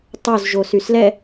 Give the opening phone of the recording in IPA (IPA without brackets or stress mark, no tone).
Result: tˤ